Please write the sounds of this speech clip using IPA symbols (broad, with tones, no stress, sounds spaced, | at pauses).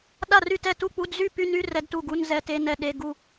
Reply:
ɗ a˥˩ r y˥˩ t ɛ˥˩ t u˥˩ k͡p u˧˥˧ d z y˥˧ p y˧˥˧ n y˧˥˧ r ɛ˧˥˧ d t u˥˩ ɡ u˧˥˧ n z ɛ˧˥˧ t e˧˥˧ n ɛ˥˧ ɗ e˧˥˧ ɡ u˥˧